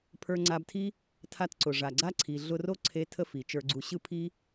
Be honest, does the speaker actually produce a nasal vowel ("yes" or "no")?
no